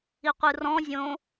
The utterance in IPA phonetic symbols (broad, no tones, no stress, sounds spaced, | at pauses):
i qʷ ɯ r ɔ̃ zʲ õ